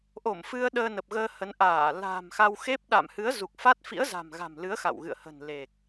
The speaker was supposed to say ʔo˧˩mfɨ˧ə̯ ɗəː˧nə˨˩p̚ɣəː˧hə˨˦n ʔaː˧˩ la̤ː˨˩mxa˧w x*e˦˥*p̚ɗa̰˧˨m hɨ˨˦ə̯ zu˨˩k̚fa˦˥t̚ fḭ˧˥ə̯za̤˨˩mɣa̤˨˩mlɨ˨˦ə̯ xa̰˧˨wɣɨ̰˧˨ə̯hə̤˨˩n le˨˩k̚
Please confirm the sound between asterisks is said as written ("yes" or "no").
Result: yes